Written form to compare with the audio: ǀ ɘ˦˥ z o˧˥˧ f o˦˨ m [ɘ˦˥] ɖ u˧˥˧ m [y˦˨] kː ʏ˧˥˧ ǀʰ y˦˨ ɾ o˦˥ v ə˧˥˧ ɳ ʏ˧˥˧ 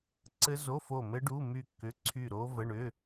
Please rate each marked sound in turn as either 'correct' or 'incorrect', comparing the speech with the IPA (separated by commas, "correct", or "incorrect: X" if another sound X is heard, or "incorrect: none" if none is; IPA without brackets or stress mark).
correct, correct